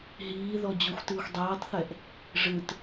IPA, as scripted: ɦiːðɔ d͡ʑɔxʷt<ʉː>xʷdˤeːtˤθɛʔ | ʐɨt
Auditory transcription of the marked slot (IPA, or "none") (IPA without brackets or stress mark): ɨː